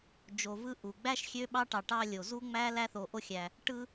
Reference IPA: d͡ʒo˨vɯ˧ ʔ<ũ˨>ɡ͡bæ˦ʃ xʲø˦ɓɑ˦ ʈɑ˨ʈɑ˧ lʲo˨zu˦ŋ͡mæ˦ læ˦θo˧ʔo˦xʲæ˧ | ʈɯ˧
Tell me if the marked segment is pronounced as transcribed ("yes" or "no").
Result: no